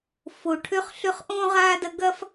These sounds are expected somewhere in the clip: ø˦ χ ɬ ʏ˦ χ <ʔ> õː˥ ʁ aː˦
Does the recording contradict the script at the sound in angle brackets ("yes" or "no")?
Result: no